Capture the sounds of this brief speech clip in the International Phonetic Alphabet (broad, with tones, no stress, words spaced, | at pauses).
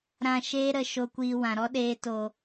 ɾã˦˨ʃeː˦ ɾə˧ ʃo˧kʷiː˧ wã˨ɾɔ˦ ɗeː˧ to˨